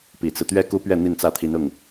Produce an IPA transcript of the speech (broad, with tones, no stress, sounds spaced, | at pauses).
p i˨˩ t͡s ɹ̩˦ t̪ ɥ ɛ˥ k u˥ p ɥ ɛ˥˧ n̪ i˥˩ n t͡s ä˥ t̪ʰ i˧˥ n ʊ˥˩ ŋ